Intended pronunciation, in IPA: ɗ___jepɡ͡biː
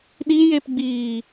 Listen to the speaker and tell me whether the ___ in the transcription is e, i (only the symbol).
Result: i